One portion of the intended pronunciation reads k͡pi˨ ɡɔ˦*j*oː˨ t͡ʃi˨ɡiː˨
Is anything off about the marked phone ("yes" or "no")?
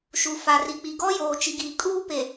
no